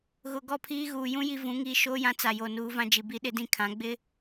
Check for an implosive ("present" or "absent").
present